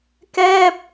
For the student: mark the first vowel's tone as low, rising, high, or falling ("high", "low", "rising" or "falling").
falling